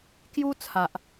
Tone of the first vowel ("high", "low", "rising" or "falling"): high